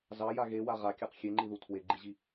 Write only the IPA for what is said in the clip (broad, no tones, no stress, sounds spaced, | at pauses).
z ɑ j a ɣ e w a ʁ a kʲ a q xʲ e ŋ͡ǃ i ð u tʰ w e ɡ͡ǃ i ʑ i